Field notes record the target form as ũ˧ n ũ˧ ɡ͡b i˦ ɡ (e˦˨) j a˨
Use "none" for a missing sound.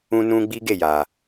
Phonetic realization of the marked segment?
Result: e˦˨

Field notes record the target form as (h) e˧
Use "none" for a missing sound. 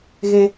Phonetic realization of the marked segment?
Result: ɣ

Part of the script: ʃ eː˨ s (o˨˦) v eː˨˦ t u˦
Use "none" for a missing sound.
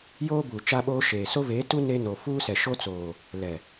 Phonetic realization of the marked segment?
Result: o˦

